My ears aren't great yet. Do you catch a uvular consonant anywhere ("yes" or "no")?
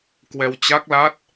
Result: no